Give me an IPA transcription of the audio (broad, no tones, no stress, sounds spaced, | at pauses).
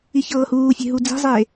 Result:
i ç ɤː h uː fʲ e̤ ɦ u d͡z i̤ zˤ eː